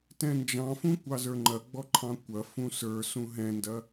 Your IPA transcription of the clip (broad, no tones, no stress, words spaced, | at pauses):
tɛ̃nd͡ʒɑ̃fũ kʷɑzə˞ŋ͡ǃɐɡ͡bɔ ǃʰɑ̃kʷɐfũ sə˞ sũɦɛ̃ndɐ